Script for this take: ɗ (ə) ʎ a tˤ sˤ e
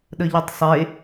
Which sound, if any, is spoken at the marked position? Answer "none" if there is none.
ə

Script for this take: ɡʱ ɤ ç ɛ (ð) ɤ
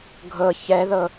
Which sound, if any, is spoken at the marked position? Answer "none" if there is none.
ð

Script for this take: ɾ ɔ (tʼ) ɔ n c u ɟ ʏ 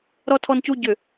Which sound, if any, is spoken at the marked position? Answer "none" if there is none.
tʰ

